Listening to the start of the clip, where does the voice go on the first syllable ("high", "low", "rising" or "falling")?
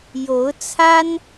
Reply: rising